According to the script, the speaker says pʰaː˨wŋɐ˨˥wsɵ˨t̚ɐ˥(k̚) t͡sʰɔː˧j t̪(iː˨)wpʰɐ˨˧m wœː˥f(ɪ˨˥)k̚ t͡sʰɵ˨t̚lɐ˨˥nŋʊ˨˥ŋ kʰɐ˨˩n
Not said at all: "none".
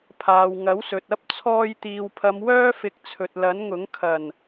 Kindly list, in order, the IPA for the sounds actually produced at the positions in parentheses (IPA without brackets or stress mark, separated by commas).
p̚, iː˨, ɪ˨˥